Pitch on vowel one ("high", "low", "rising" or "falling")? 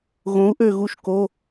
rising